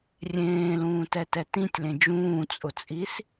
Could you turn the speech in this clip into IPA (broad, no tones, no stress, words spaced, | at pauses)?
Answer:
rʲẽːlũːtɛtɛ tĩtʲlẽ d͡ʒũːt͡sʼʊt͡sʼis